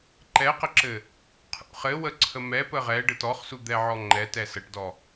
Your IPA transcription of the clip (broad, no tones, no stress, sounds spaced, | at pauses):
ǃ ɛ q ə ǁ ɘ | qʰ ṵ χ ɘ w ə ǀʰ ə m ɛ p ə ʁ ɛ ɖ ɘ t ɔ χ s u d̪ ɛ ʕ ɔ ŋ͡ǃ ɛ t ɛ s ə ʈ d ɔ